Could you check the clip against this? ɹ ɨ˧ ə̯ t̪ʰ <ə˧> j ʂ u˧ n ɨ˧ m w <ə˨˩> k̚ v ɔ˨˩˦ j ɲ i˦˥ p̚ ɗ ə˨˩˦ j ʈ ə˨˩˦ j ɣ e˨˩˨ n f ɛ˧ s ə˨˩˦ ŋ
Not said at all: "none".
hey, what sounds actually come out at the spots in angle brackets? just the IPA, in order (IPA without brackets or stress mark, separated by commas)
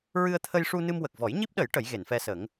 ə˧, ə˨˩